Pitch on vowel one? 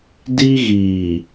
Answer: high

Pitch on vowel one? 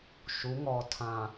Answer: rising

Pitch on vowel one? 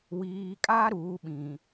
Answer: low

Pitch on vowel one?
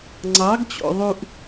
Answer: rising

